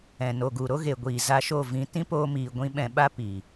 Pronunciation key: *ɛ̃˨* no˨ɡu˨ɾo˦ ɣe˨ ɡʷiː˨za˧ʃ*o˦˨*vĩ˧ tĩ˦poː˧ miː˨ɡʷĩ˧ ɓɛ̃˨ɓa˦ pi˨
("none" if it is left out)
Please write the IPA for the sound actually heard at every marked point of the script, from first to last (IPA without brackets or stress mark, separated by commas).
ɛ̃˨, o˦˨